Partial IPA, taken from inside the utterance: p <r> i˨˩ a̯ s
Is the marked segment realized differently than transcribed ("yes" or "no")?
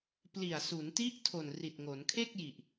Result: yes